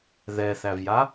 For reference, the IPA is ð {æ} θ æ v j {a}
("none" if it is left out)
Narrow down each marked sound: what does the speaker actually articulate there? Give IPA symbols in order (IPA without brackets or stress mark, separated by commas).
ɛ, a